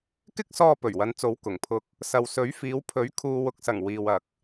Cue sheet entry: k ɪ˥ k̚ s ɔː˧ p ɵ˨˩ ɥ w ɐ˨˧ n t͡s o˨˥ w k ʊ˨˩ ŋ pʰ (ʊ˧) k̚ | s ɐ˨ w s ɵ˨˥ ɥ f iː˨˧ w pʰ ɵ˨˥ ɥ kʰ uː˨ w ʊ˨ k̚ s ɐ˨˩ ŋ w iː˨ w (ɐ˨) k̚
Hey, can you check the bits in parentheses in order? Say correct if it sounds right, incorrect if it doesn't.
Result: correct, correct

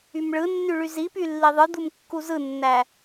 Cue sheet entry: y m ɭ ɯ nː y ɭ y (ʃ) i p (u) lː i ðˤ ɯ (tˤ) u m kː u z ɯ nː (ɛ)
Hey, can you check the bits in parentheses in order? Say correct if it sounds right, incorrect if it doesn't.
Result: incorrect: z, incorrect: y, incorrect: d̪, incorrect: æ

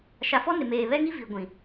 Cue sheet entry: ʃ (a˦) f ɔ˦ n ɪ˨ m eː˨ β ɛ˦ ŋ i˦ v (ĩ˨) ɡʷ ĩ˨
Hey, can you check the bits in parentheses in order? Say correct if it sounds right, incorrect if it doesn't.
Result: incorrect: a˨, incorrect: i˨

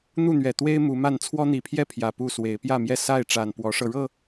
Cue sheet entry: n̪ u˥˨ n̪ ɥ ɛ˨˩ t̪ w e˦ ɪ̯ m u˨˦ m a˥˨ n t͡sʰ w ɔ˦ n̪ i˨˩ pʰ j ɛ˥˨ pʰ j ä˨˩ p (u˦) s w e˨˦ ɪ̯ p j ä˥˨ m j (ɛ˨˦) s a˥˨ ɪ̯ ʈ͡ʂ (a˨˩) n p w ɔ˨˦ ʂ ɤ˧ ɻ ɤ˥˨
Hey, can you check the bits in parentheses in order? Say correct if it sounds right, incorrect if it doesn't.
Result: incorrect: u˥˨, incorrect: ɛ˥˨, correct

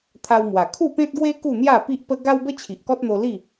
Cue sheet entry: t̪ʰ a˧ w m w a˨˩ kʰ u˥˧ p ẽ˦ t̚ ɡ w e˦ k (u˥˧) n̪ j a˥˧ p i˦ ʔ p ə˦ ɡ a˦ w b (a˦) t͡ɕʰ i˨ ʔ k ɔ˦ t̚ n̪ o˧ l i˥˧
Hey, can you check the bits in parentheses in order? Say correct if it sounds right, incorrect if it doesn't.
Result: correct, incorrect: ə˦

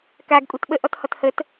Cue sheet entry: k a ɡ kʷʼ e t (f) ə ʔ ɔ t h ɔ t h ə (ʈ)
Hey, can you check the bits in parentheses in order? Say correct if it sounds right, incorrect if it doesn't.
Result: incorrect: ɓ, incorrect: t

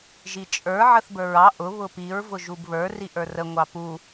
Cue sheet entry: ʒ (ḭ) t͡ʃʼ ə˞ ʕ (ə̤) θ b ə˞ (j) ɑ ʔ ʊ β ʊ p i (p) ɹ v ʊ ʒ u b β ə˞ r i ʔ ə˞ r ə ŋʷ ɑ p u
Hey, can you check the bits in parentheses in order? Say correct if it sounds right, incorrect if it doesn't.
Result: incorrect: i, incorrect: ə, incorrect: ɹ, incorrect: none

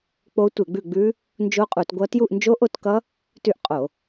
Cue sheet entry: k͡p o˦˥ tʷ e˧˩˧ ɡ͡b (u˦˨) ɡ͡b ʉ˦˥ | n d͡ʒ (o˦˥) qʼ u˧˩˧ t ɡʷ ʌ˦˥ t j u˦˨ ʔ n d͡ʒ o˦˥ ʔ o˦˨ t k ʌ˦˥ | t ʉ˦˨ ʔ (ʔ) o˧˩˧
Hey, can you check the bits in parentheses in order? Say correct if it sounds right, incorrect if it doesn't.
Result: incorrect: ʉ˦˨, correct, incorrect: qʼ

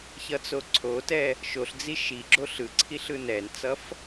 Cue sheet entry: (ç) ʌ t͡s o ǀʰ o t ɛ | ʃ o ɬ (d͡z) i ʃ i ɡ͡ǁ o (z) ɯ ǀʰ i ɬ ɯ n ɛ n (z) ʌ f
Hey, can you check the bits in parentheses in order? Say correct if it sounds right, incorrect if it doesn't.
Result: correct, correct, incorrect: ɬ, incorrect: t͡s

